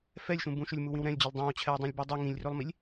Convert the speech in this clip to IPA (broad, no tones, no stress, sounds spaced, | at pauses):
f ɛ lʲ ʃ ũ b ũ ʃ ɵ lʲ m u w ĩ w ɾ ɛ̃ lʲ d͡ʑ ɵ lˠ dˤ ɛ̃ w t͡ɕʰ ɛ w dˤ ĩ lʲ b i dˤ i ŋ ĩ lʲ r ɵ lˠ m i lʲ